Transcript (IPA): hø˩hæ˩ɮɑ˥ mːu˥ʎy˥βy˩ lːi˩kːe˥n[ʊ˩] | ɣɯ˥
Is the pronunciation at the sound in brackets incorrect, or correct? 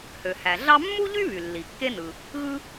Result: incorrect